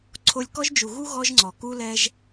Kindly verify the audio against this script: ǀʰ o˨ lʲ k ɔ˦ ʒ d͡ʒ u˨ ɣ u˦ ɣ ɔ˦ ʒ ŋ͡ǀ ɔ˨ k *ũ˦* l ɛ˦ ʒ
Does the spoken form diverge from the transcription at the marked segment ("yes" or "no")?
yes